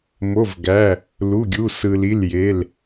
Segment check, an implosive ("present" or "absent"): absent